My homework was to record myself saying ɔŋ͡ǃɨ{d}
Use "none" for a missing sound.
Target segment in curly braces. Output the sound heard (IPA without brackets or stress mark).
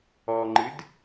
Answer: d